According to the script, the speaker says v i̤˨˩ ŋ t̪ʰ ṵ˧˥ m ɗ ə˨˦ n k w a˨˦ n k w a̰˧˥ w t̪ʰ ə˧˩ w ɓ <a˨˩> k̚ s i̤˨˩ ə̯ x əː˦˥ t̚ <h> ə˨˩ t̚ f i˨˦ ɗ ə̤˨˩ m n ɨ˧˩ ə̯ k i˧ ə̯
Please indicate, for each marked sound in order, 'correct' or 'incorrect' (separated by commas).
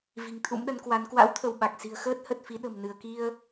correct, correct